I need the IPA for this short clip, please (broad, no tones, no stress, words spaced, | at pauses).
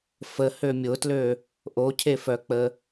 fəhø mʲʊtlø | ʔocʰefœk͡pə